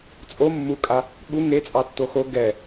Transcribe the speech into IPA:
t͡sʼ o mː u kʼ a | ɠ u ŋ e t͡sʼ ɑ tː o x o ɡ ɛ

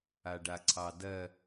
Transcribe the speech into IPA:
a ɖ a ǀʰ ɑ d ɜ

